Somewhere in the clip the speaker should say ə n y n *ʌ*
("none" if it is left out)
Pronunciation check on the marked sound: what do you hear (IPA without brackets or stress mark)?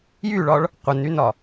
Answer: ɒ